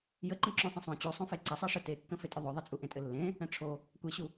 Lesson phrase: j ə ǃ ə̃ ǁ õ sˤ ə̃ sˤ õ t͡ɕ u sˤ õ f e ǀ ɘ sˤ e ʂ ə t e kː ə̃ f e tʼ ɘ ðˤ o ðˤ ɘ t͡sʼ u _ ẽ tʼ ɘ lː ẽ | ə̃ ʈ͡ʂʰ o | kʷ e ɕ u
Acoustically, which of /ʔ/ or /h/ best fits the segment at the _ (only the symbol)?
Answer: ʔ